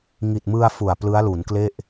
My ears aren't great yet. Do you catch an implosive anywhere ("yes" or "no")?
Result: no